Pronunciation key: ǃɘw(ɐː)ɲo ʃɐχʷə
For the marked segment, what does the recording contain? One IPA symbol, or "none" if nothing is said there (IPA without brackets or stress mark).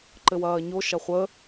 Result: ɐː